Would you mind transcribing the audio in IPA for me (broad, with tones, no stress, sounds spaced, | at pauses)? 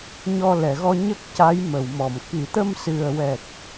ɲ ɔ˧ l ɛ˨˩˨ ɣ ɔ˧ ɲ ə˦˥ k̚ c a˧˥ j m ə˨˩˨ w m ɔ˨˩˨ m k i˨˩˨ t̪ ə˧ m s ɨ˨˩ ə̯ w ɛ˨˩ t̚